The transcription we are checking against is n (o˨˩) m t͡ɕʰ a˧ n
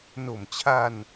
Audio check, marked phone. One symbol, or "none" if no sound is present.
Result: o˨˩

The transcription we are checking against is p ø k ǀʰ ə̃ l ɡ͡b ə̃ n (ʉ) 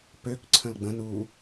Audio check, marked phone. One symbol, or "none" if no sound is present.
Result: u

